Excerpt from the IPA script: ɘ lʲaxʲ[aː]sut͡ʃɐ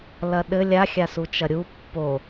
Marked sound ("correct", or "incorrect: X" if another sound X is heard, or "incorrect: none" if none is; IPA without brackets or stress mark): incorrect: a